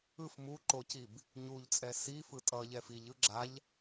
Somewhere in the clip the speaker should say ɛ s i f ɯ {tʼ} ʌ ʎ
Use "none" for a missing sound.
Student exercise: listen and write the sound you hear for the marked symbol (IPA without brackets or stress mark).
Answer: tʼ